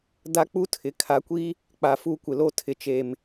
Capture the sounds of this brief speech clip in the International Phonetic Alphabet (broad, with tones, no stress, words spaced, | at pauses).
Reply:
da˦k͡pu˦tʰɪ˨ kʰa˨kʷi˦ | k͡pa˨fu˦˨kʷɪ˨lo˦ tʰɪ˨t͡ʃe˨m